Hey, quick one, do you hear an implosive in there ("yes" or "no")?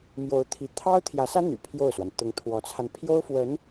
no